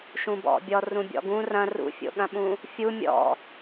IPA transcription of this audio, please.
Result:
ʃ ũ b ɔ̰ bʲ ɔ r ũ bʲ ɔ̰ ɡ ũ r ɐ̃ r ṵ fʲ o̰ ɠ ɐ̃ ɓ ũ | fʲ u mʲ ɔ̰

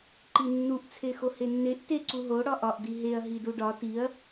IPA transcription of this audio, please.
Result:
ǃ i nː u ʔ t͡sʰ e x o h e nː e ʔ t e ǀ u ɦ o ɽ ɒ ʔ ɒ ʔ d i ɦ e ɐ̯ ɦ i d u ɖ ɒ t i ɐ̯

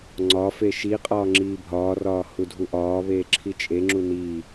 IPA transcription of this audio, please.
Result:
ŋ͡ǀ ɒ f e ʃ i qʼ ɒː ŋ͡ǁ iː bʱ ɒː r ɒː h u dʱ u ʔ ɒː β eː ǁʰ i t͡ʃʼ e ŋ͡ǁ u n iː

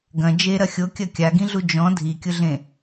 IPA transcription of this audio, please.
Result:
ɡ ɐ̃ d͡ʒ e ɾ ɐ xʲ o kʲ ɐ kʲ a ɡ ĩ ɮ u d͡ʒ ɔ̃ dʱ i kʲ ʊ ɮ ẽ

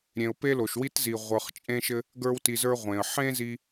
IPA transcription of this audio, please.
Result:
ɾʲ ẽ˨ ʊ̯ p e˦ l o˨ ʃ w i˦ t z i˨ ʁʷ ə˞˨ χ t͡ʃʼ ẽ˦ ʃ ɘ˦ | ɡ ə˞˦ w t i˧ z ə˞˦ ʁʷ ẽ˨ ə̯ ħ ẽ˦ z i˦

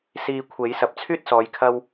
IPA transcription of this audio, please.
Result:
s iː˨ kʷʰ e˨˥ j s ɐ˨ p̚ t͡sʰ yː˥ t̚ s ɔː˨˧ j kʰ ɐ˥ w

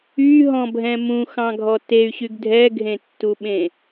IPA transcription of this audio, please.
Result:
y ɦ ɔ̃ bʱ ɛ̃ m ũ x ɑ̃ ɡʱ ɔ t e y̯ ɕ y ɡ dʱ ɛ ɡʱ ẽ tː u ɓ ẽ

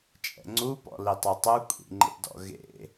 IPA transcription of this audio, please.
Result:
t͡ʃʼ ɛ̰ ŋ͡ǀ u p ɔ̰ l i tˤ œ tˤ u kʷʼ ḭ ŋ͡ǃ ḛ d ɔ̰ ɣ ḛ

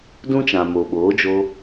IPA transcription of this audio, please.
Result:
d ũ˦ t͡ʃ ã˨ m o˨ ɓ oː˨˦ d͡ʒ o˧

